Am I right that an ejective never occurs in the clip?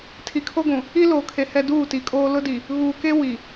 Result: no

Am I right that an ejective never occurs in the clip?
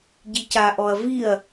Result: yes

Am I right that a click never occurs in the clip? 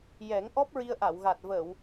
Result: yes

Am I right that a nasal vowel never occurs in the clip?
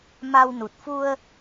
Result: yes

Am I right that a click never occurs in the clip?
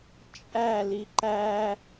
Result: no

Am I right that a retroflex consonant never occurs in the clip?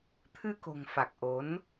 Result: yes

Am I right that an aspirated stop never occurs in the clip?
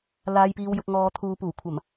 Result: no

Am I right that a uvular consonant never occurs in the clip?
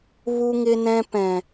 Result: yes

